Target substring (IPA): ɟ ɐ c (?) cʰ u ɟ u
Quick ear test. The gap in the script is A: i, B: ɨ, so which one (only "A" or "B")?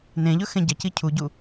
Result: A